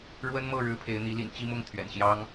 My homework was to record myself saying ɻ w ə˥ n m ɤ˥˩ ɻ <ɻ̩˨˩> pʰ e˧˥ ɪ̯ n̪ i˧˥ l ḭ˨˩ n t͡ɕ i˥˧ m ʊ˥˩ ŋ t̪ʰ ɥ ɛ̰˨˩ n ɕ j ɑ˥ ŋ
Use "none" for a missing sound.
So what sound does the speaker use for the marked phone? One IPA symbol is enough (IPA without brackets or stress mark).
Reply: ɻ̩˥